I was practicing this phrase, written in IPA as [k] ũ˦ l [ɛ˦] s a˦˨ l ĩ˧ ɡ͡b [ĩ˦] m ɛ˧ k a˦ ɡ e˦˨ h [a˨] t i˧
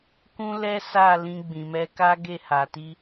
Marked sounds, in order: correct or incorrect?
correct, correct, incorrect: ĩ˨, correct

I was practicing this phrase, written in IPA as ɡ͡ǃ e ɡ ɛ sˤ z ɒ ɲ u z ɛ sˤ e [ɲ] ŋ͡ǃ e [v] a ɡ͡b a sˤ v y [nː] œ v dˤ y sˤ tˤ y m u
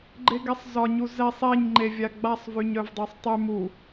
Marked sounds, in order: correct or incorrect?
correct, incorrect: vʲ, incorrect: ɲ

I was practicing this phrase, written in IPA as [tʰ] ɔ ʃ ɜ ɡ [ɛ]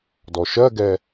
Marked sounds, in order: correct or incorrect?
incorrect: d, correct

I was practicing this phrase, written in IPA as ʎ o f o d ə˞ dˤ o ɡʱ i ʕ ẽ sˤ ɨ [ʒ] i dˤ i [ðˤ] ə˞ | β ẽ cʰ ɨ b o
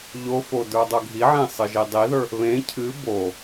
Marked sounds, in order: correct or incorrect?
correct, incorrect: ð

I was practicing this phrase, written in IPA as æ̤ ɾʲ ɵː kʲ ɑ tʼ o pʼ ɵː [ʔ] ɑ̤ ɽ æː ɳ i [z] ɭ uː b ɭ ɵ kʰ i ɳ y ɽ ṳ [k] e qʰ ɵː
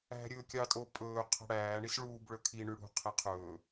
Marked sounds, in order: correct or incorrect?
incorrect: qʰ, incorrect: s, incorrect: qʰ

